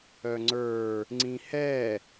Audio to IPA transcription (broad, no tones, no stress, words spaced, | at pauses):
œŋ͡ǀə˞ | ŋ͡ǀĩhɛ